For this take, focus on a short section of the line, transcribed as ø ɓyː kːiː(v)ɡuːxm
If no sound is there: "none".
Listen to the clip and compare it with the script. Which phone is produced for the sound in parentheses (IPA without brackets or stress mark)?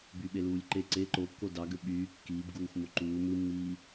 b